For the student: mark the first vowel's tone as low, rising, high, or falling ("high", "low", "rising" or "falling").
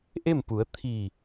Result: falling